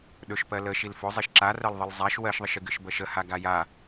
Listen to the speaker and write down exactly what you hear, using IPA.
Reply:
ɗ ɵ ʃ p ɜ l ə ʃ i l f ɵ zˤ i ʃ ǁ a r ɜ l ðˤ ə l zˤ a ʃ w ɜ ʃ ðˤ ə ʃ ɨ ɡ ɨ ʃ b ɜ ʃ ə h a ɡ a j a

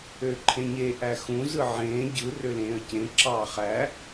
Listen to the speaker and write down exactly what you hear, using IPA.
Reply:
ø ǃʰ ẽ ɲ e ʔ æ x ũ z ɯ ʕ ẽː ɟ ɯ r ø l ẽː ə̯ c ẽ ǁ ɑː χ æ

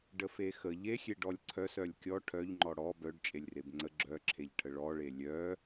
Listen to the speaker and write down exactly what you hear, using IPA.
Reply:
ɖ ə f e x ə ʎ e xʲ e ɖ ɔ lʲ ǀʰ œ s œ lʲ kʲ ɔ ʈʰ œ ʎ ŋ͡ǃ ɔ ɽ ɔ b œ ɖ t͡ʃʼ e lʲ r e b ŋ͡ǀ ə ɡ͡ǁ œ ǁʰ e ʎ ʈʰ ə ɭ ɔ ɭ e lʲ œ

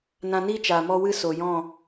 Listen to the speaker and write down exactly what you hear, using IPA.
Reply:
n ã˧ n iː˦ t͡ʃ aː˨ m ɔ˦ w ɨ˦ s o˨ j ɔ̃˦˨

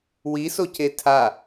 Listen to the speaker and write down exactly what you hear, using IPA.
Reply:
w i s o c e tʰ a

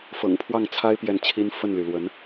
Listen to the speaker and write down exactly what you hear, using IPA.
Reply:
f ɤ̰˨˩ ŋ pʰ w ɑ˥˩ ŋ t͡sʰ a˥ ɪ̯ p j ɛ˥˩ n t͡ɕʰ i˥ n f ə˥˩ n l y˩ l w ə˧˥ n

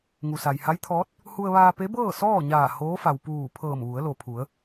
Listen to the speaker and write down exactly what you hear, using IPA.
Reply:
ŋ u˩ s a˩ j h a˧˥ j t̪ʰ ɔː˧˥ t̚ | h u˧ ə̯ ʋ aː˧ p e˧˥ b ɤː˥˨ s ɔː˥˨ ɲ aː˧˩ h oː˧˥ f a˩ w p uː˧˩ pʰ ɤː˧˩ m ʋ u˩˧ ə̯ l o˩ pʰ u˩˧ ə̯

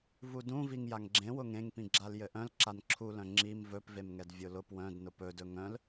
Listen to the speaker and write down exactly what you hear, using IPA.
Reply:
v u d ũ v i ŋ j a ŋ ɡ͡ǁ ẽ w ʊ ŋ ẽ ŋ p ĩ ɡ͡ǁ a l j ɘ ʔ œ̃ l ǁ a n ǁʰ u l œ̃ ŋ͡ǁ i m v ɵ p v e m ŋ ɛ d vʲ ʊ l ʊ p w œ̃ d n ʊ p ɵ d ɵ ŋ œ̃ l

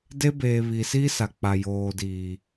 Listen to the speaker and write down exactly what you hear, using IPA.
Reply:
d e˦ b eː˨ β i˨ s i˦ s a˨ k͡p a˨ j oː˨ d iː˨

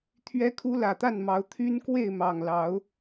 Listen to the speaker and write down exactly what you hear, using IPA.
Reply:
t̪ʰ ɥ ɛ˦ kʰ u˦ l ä˨˩ t̪ a˥˨ n m ɑ˨˦ ʊ̯ t̪ʰ y˦ n k w e˥˨ ɪ̯ m ɑ˨˩ ŋ l ɑ˨˦ ʊ̯

